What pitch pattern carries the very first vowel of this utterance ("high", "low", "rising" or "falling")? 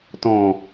low